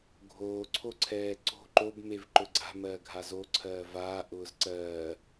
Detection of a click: present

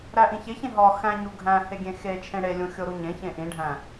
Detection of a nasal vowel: present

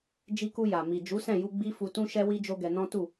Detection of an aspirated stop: absent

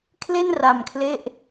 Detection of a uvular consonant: absent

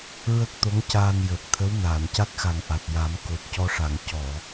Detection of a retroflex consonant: present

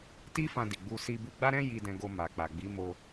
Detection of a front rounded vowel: absent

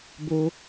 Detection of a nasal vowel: absent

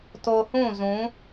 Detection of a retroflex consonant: absent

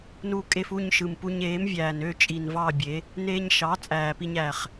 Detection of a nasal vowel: absent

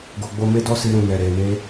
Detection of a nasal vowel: present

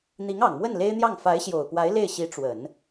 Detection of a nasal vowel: absent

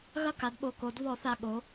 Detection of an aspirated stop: absent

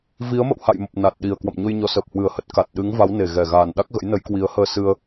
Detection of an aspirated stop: absent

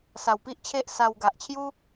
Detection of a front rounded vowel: absent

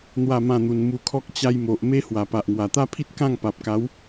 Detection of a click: absent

